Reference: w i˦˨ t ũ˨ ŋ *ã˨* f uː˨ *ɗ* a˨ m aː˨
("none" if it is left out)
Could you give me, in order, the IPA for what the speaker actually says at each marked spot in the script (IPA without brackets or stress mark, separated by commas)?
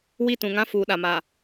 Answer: ã˦, ɗ